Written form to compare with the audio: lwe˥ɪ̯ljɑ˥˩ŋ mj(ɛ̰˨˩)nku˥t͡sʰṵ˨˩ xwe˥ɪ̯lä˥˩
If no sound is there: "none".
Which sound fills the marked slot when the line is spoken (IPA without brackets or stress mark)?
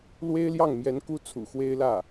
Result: ɛ˧˥